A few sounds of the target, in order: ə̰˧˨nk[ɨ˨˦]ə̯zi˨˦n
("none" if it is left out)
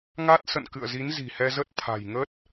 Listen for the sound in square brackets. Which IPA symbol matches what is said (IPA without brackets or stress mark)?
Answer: ɨ̰˧˨